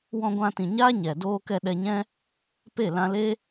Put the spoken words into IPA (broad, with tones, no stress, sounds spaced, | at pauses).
w ɔ̃˧ ɡʷ ã˧ t ĩ˨ ɲ aː˦ ɲ ɛ˨ d oː˧ k ɛ˧ ɗ ɛ˧ ɲ ɛ̃˦ | p e˦˨ l ã˧ l e˦